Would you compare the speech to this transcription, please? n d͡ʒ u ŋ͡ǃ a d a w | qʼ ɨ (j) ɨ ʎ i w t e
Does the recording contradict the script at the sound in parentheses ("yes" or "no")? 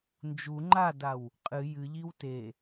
no